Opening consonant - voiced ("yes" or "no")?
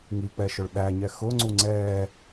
yes